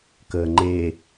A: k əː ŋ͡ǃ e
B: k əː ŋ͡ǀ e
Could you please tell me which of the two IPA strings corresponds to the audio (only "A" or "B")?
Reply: A